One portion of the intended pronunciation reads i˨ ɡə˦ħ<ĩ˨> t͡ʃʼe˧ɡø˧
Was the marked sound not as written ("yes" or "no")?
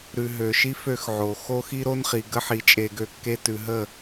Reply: yes